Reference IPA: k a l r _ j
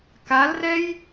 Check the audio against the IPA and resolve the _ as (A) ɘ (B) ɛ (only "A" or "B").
B